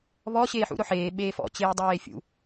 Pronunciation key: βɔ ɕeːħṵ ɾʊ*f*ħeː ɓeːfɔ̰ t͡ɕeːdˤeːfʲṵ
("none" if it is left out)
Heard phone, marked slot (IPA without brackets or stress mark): none